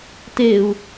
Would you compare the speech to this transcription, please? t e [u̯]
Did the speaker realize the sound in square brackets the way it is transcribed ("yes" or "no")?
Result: yes